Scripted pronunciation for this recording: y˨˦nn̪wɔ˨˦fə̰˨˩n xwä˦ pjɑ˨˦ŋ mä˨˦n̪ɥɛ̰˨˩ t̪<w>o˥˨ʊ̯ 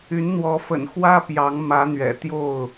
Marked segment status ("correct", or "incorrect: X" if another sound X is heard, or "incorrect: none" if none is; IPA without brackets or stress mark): incorrect: j